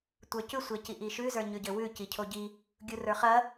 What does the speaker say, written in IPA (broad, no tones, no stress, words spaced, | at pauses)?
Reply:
tʷə˞cʉ sʷeciʔiʃʉ zə˞ɲʉɟɘwʉ cicʰoɟi | ɡʲurə˞χɐ